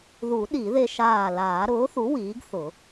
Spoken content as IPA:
ð u˨˩˦ ɗ i˨˩˦ ð e˧ ʃ aː˧˩ l aː˨˩˦ ɾ ʊː˩˥ θ u˩˥ w iː˩˥ ɡ θ ʊ˨˩˦

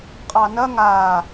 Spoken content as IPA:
qʼ ɑ n ɐ ŋ a

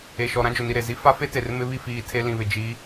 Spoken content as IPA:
e˨ ʃ ɔ˨ ɾ ã˦ d͡ʒ ʊ˨ n i˨ ɾ e˨ z i˦ f a˦ f e˦ t e˨ r m ɪ˦ β i˦ f iː˨ tʰ e˦ l ĩ˨ β ɪ˨ d͡ʒ i˨˦

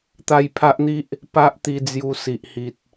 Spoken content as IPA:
t̪ a˥˧ j pʰ a˦ ʔ n̪ i˦ ʔ | p a˦ ʔ t̪ i˧ d͡z j u˧ s i˨ ʔ h i˨ t̚

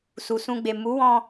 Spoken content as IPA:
s u˨ s ũ˧ ɡ͡b e˨ m u˨˦ w ɔ̃˧

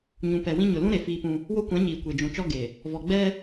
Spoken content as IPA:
ɲ ũ˨ p ɛ˨ w ĩ˦ ɲ ʊ˨ l ũ˦ ɾ e˨ f iː˦ p ũ˦ | w o˦ kʷ ã˨˦ ɲ iː˨ kʷ e˨ d͡ʒ ũ˨ t͡ʃ ɔ˦ ɡ e˨ | v ɔ˨ ɡ͡b ɛ˦

